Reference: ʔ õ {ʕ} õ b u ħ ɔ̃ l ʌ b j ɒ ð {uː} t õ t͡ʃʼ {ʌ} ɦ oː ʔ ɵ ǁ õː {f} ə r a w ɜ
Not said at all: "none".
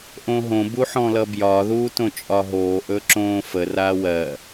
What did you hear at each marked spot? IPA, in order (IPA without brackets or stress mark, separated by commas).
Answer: ɦ, uː, ɒ, f